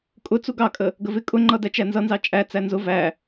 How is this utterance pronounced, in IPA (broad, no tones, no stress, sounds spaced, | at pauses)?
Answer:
kʼ ʊ t͡s u ɡ ɑ kʼ ə | ɡ ə v ɪ kʼ ʊ ŋ͡ǃ ʌ d æ t͡ʃ æ n z ʌ n z ɑ t͡ʃʼ æ t͡s æ n z ʊ v æ